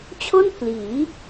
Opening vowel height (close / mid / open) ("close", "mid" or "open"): mid